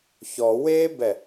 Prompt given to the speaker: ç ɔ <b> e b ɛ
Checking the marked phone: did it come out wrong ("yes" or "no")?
yes